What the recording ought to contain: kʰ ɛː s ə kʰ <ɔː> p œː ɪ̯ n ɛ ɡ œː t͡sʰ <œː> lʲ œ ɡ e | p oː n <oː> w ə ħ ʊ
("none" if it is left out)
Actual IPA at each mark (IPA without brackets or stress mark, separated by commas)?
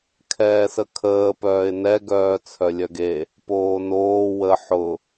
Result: əː, œ, oː